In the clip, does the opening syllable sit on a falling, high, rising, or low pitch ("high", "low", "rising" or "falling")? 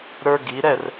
high